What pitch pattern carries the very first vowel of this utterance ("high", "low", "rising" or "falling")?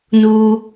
low